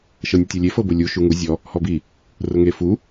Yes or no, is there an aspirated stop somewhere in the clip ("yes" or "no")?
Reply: no